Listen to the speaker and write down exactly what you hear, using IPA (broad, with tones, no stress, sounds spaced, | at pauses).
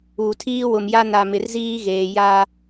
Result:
uː˨ tʰ iː˦ w ʊ˨ m j a˦ n a˨ m ɪ˨ r z iː˦ ɣ eː˨ j a˦